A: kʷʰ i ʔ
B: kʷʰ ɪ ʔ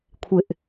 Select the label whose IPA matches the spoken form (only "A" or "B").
B